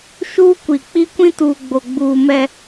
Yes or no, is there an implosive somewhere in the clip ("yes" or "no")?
no